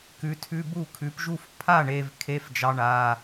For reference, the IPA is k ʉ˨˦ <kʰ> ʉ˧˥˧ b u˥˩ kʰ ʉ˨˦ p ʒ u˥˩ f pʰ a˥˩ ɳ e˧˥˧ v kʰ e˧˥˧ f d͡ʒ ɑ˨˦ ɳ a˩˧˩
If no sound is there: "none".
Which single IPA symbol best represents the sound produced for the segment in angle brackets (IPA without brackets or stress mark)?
tʰ